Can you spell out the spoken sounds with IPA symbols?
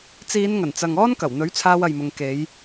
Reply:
t͡s iː˨˧ n ŋ ɐ˨˩ n t͡s ɐ˨ ŋ ɔː˥ n k ɐ˨˩ w n̪ ɵ˨˥ ɥ t͡sʰ aː˧ w ɐ˨ j m ʊ˨ ŋ k e˨˧ j

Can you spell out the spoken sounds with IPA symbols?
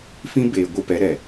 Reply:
f ĩ˦ b eː˨ ɡʷ ɨ˧ p ɛ˨˦ ɾ ɛ˨

